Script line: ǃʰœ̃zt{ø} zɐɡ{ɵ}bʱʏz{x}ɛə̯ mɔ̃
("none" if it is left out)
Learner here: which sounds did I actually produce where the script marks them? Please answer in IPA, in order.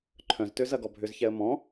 ø, ɔ, ç

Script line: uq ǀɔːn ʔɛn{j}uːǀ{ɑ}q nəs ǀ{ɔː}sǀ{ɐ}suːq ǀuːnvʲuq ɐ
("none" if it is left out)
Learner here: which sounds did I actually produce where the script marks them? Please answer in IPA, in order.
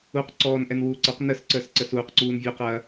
w, ɑ, əː, ə

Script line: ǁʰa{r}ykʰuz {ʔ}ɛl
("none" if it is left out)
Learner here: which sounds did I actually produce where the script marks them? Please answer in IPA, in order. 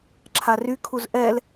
r, ʔ

